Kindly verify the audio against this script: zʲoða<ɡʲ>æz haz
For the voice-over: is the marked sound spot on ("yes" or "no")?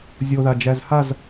no